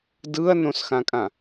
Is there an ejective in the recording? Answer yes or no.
yes